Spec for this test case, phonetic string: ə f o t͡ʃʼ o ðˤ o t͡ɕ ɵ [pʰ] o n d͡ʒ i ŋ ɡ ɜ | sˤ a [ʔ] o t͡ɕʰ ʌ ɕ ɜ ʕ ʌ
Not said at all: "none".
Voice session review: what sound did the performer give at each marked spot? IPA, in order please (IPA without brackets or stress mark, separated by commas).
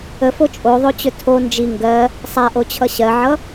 tʰ, ʔ